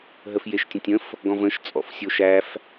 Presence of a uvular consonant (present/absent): absent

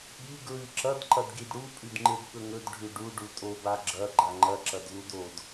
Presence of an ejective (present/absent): present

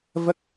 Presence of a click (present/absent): absent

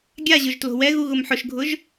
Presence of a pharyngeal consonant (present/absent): present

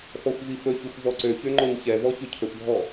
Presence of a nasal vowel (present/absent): absent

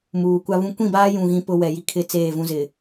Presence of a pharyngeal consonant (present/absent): absent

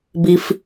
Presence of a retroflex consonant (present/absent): absent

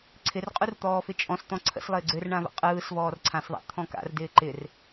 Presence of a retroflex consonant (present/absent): present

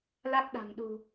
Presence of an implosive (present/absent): present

